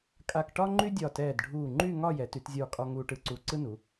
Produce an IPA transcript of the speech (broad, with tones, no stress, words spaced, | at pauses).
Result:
kʼa˧kʈɒ˥ ŋ͡ǃy˥dʲɒ˧˩tɛː˧˩dɖʱuː˧˩ ŋ͡ǃy˥˧ŋɒ˥˧ jɛ˩˧ty˩˧tzʲɒː˧˩kʼɒ˧ ŋuː˧ʈɯ˧˩ǀuː˧ǀɯ˥ nu˩˧